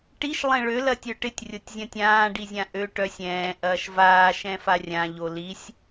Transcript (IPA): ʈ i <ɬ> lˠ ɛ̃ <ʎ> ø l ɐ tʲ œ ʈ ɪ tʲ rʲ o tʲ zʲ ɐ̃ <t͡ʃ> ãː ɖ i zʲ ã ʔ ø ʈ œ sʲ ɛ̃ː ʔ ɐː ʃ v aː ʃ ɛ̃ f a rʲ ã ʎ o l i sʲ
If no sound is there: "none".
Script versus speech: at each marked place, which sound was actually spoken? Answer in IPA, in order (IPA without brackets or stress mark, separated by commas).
ʃ, ɭ, tʲ